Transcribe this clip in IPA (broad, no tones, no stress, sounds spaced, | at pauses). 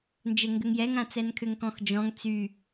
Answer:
n d͡ʒ ɛ ŋ ɡ ʏ ŋ j ɛ ŋ ã t͡s ɛ n kʰ ʏ ŋ k ɔ̃ x d͡ʒ ɔ̃ ŋ t͡s y